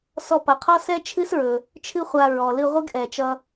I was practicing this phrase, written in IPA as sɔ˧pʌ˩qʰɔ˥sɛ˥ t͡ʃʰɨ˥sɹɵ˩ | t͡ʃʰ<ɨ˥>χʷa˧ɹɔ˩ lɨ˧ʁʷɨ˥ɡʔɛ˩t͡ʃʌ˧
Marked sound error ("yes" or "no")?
no